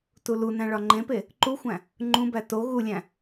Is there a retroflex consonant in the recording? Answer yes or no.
yes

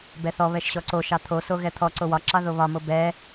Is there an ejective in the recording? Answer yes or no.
no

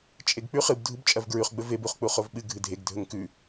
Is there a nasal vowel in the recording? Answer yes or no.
no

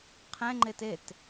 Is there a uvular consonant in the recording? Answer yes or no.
yes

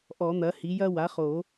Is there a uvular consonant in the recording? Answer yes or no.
yes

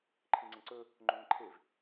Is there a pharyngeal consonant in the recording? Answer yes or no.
no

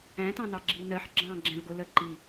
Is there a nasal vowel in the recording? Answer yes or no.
yes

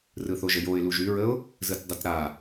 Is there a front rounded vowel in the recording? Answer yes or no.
yes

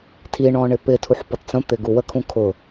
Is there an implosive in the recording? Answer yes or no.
no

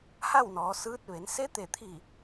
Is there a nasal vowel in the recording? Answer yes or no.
no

